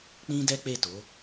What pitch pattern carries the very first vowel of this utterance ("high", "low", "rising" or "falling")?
high